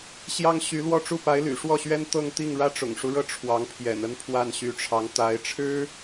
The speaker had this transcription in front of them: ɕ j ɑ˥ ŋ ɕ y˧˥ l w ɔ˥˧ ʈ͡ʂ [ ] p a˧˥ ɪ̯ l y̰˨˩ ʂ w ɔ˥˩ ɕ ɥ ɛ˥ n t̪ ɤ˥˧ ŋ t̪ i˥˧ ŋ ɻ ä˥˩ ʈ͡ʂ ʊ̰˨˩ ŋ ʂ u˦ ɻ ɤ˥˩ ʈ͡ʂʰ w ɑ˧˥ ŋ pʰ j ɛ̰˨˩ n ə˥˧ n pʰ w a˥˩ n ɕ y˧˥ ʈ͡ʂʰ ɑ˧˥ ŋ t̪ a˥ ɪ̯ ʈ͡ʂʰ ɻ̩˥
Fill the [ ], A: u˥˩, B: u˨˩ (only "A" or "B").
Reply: A